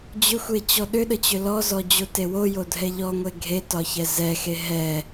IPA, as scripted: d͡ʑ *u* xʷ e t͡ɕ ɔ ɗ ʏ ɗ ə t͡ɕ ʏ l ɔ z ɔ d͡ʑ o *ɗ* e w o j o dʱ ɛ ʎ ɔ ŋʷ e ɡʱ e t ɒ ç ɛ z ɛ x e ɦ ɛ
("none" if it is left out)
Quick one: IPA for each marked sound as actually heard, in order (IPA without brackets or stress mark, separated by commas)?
ʏ, t